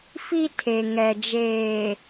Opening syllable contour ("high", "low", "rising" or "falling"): high